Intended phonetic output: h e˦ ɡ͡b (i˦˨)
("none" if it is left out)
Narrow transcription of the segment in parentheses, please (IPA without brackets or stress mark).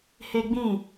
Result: ĩ˦˨